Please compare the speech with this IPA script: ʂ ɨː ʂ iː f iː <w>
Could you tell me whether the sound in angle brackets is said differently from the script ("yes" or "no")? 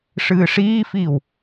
no